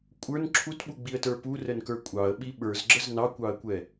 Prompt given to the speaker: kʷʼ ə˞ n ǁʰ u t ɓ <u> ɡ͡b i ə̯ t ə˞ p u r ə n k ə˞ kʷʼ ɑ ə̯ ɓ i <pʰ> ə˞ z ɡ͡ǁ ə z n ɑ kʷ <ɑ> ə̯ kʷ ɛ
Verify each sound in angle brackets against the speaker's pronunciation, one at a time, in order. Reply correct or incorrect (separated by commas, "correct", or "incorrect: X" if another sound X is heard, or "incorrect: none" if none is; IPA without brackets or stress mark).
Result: correct, incorrect: ɓ, correct